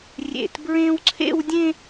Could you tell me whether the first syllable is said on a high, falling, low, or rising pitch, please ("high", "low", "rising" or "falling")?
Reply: high